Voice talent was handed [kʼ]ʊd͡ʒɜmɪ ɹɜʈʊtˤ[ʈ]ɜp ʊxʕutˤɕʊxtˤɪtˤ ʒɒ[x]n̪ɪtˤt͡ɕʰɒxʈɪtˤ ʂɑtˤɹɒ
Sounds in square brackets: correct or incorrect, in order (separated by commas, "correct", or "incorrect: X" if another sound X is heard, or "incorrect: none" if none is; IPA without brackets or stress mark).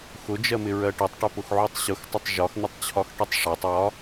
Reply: incorrect: x, correct, correct